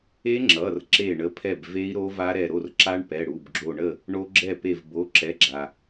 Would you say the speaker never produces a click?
no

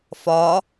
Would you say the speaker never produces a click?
yes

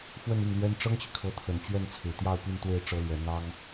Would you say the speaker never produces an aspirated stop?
no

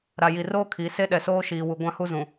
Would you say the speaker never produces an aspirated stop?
no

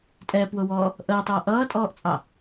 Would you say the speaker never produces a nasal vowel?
yes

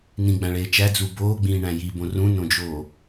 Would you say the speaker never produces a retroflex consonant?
no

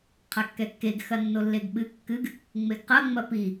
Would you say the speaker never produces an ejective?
yes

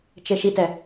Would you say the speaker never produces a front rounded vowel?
yes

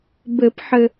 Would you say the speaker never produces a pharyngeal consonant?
no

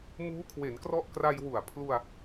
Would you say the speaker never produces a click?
yes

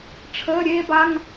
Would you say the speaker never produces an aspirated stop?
no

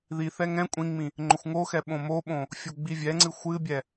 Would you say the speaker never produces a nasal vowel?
no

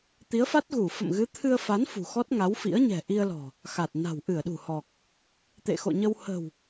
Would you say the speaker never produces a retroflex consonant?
yes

